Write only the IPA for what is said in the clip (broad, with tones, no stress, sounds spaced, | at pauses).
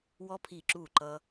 w ɔ˧ pʰ i˧˩ ǁ u˧˩ ǃ ʌ˧